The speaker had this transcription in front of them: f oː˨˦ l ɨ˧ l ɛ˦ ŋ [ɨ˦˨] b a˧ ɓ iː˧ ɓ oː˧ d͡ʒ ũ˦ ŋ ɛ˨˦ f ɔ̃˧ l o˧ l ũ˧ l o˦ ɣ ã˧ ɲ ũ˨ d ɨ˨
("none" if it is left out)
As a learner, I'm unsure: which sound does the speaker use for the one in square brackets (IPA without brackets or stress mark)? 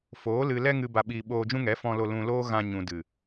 ɨ˧